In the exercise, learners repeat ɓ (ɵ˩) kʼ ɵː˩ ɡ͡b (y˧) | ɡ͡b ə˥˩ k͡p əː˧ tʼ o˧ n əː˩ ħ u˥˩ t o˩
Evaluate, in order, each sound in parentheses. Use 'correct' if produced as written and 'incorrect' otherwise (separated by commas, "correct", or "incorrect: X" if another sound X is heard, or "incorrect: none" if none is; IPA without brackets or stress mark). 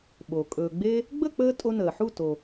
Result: incorrect: o˩, incorrect: e˧